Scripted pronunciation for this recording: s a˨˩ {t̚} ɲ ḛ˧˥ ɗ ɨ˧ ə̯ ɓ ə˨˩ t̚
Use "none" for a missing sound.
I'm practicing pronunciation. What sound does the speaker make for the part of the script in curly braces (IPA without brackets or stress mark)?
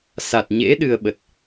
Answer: t̚